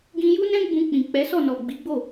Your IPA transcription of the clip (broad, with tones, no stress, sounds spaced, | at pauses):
ɡ ĩ˧ j u˦ n ɛ̃˦ ɡ͡b ũ˧ k͡p ĩ˨ k͡p ɛ˨˦ s ɔ˦˨ n ɔ˨ ɡ͡b i˨˦ ɡ͡b o˦˨